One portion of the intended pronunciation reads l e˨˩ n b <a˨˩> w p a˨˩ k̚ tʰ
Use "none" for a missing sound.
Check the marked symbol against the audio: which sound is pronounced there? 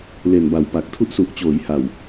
a˨˩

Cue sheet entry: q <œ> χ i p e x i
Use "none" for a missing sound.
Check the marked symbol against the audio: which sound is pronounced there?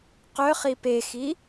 œ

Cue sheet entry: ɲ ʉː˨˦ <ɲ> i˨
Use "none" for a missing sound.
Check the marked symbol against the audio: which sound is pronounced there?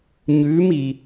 m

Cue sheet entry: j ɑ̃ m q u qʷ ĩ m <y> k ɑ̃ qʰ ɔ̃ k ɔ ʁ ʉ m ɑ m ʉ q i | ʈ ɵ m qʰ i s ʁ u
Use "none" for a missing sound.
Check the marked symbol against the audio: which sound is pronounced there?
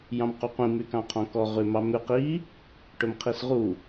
y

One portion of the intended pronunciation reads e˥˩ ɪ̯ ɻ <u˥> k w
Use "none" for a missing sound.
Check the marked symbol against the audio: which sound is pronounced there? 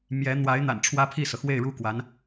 u˥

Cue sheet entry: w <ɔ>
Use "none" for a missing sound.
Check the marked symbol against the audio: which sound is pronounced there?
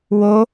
o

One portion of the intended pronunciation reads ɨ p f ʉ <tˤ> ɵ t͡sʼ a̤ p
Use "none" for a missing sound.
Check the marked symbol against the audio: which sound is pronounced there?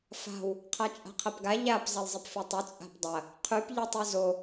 tˤ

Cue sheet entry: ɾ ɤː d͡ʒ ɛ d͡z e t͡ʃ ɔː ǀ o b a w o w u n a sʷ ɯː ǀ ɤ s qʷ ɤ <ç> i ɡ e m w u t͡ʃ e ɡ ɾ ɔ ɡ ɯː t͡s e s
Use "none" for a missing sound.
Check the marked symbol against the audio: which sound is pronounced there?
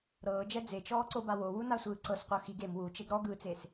x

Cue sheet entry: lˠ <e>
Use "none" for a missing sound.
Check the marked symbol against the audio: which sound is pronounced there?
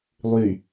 y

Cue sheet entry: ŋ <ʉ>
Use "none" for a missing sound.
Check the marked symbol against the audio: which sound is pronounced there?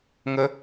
ə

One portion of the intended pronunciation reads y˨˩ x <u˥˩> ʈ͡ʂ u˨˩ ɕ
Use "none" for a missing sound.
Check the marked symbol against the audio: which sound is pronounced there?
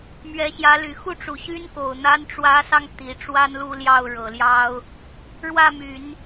u˥˩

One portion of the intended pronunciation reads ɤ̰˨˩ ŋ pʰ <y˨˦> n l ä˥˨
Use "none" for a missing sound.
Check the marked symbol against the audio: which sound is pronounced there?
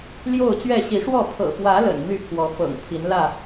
i˨˦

